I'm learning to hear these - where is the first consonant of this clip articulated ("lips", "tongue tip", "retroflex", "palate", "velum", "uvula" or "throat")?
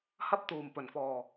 throat